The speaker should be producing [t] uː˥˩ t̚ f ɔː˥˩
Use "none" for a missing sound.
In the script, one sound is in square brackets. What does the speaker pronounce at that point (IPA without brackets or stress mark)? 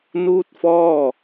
n